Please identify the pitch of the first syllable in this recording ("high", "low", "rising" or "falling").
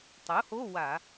rising